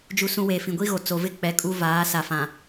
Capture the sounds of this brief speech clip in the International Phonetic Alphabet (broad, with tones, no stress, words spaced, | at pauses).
d͡ʒu˦sũ˦ weː˨fĩ˨ɡʷi˦ɣo˨ t͡so˨vɪ˦ k͡pɛ˨˦kʼu˦ vaː˨˦sa˨fã˨